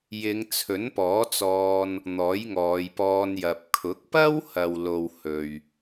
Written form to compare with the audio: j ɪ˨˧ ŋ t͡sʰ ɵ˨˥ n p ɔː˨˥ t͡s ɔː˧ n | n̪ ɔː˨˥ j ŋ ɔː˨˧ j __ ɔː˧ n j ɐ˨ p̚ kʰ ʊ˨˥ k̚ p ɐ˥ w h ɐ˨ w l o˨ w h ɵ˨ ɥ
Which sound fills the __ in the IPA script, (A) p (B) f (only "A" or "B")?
A